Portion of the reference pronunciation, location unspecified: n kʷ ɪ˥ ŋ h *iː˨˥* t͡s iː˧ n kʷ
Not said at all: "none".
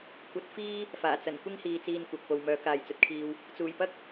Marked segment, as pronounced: iː˨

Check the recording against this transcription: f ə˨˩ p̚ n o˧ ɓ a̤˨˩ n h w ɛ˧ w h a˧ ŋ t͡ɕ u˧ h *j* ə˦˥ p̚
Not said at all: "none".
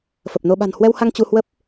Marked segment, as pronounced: w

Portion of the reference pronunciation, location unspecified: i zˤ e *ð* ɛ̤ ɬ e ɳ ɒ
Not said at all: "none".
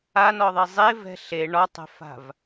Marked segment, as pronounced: v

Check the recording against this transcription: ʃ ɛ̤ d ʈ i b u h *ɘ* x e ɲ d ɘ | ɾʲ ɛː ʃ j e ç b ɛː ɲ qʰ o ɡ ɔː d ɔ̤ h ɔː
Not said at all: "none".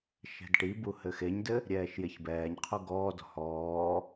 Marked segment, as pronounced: ɘ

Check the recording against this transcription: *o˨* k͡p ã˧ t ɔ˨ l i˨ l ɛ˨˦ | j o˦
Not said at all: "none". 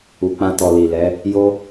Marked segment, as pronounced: u˨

